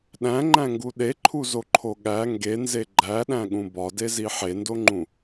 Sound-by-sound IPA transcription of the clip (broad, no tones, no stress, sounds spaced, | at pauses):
ɗ æ̃ ŋ͡ǃ æ̃ ŋ ɡ u ɗ e ǃʰ u z o ǃʰ o ɠ æ ŋ ɡ e n z e ɡ͡ǃ æ ɗ æ̃ ɠ ũ b ɒ d e z i ħ e n d o ŋ͡ǃ ũ